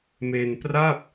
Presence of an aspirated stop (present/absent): absent